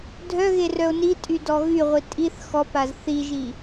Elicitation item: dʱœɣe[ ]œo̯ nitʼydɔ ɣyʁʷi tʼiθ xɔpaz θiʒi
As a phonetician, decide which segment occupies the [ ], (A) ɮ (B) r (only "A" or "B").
B